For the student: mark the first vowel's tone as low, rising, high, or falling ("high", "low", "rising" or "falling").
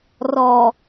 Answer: low